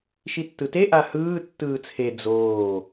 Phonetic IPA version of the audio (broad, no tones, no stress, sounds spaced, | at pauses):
ʃ i tː ɯ t e ʔ a h ɯː tː ɯː t͡sʰ e d͡z oː